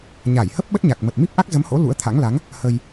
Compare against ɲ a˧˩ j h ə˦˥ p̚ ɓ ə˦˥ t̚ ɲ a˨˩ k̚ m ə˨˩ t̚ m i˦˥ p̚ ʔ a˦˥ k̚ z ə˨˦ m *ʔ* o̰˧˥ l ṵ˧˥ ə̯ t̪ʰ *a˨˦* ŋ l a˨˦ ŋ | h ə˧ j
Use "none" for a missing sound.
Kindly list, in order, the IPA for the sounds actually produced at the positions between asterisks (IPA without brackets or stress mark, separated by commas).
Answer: h, a̰˧˥